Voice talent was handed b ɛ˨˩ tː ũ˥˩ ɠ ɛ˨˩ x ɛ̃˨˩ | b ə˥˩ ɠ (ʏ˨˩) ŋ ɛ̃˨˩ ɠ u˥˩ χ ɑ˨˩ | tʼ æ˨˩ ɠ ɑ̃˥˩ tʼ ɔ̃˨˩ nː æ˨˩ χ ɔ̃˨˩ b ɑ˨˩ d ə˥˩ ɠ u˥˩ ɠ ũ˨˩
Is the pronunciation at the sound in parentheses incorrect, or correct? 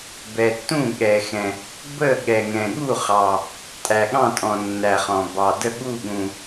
incorrect